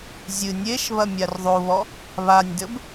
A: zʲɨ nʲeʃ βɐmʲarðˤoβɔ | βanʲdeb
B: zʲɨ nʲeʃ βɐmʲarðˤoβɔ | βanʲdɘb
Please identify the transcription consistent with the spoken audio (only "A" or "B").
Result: B